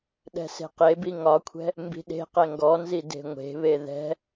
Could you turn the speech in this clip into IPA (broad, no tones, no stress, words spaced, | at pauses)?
ɗɛ̤se̤qebi ŋɒkʷʰɛ̤ | mbi̤ɗe̤qɛ ŋɡɔnzi de̤ŋʷe̤βe ðɛ̤